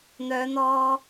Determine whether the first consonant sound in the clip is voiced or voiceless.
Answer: voiced